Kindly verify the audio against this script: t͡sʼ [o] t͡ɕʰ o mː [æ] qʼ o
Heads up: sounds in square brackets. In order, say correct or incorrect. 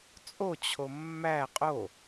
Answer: correct, correct

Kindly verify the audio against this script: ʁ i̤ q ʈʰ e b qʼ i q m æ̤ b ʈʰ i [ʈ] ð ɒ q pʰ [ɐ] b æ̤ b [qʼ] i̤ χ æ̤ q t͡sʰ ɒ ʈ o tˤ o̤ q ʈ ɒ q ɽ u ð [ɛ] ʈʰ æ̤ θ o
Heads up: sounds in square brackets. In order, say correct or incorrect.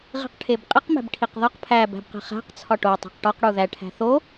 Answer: incorrect: q, incorrect: æ, incorrect: q, incorrect: æ

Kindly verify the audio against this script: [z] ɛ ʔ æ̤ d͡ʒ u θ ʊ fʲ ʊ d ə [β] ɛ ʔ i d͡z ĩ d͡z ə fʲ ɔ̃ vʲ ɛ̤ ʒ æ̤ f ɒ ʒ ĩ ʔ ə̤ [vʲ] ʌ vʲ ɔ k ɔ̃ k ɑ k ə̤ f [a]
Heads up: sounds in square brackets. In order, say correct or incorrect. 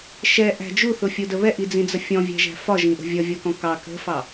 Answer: incorrect: ʃ, correct, correct, incorrect: ɑ

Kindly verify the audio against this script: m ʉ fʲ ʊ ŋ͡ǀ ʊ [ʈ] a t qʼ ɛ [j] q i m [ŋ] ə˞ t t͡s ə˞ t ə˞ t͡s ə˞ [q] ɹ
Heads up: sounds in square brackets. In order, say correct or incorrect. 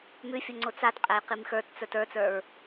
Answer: incorrect: t͡s, correct, incorrect: x, incorrect: none

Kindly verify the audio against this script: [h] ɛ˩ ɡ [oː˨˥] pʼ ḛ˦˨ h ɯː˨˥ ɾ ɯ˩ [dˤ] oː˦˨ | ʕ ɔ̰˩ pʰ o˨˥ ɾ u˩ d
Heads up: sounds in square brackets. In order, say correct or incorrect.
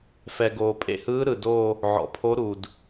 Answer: incorrect: f, incorrect: oː˩, incorrect: d

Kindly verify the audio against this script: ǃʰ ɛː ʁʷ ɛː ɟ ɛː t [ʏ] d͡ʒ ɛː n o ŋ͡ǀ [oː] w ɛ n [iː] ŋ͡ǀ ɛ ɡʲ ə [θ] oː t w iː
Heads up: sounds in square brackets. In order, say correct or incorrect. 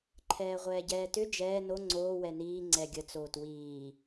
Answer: correct, correct, correct, incorrect: t͡s

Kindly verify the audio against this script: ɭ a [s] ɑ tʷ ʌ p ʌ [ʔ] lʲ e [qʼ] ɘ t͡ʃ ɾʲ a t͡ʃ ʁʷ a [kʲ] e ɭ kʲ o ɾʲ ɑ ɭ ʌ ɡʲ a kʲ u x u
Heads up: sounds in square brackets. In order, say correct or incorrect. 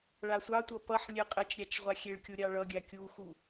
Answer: incorrect: sʷ, incorrect: ħ, correct, incorrect: xʲ

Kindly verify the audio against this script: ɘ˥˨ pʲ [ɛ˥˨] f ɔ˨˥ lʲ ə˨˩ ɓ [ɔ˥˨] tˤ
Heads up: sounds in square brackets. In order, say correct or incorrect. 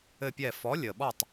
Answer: correct, correct

